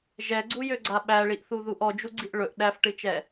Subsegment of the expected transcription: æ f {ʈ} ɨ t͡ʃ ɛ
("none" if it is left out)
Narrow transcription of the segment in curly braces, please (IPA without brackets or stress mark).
ʈ